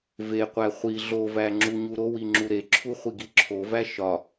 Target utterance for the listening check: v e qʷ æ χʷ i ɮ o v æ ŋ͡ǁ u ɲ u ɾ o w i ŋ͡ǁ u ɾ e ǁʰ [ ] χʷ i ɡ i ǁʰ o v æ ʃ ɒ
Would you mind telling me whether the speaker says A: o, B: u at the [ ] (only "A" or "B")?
B